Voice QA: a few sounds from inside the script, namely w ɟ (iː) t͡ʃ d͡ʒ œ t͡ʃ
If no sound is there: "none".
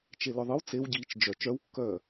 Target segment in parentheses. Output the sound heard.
iː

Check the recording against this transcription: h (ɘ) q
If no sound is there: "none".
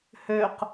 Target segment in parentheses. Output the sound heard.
ø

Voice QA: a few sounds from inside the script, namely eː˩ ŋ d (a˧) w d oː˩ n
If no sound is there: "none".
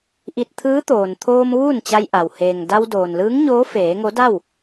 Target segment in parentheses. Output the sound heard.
a˧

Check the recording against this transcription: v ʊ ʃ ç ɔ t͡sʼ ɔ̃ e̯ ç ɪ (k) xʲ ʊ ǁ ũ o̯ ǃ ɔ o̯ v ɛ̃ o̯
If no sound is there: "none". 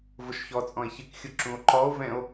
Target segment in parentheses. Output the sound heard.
k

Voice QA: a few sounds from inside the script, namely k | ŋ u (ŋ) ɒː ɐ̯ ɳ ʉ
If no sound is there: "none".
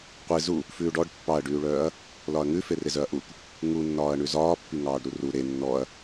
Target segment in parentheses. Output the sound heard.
nː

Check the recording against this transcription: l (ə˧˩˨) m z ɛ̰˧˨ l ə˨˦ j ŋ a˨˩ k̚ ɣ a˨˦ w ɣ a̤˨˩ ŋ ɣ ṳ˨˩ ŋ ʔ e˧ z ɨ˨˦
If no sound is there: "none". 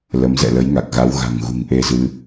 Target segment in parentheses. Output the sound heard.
ə˨˦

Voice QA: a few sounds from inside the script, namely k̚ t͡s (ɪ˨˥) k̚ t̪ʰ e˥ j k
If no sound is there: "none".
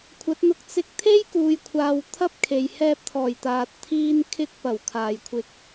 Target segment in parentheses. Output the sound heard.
ɪ˧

